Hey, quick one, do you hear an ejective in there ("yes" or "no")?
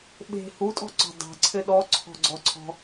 yes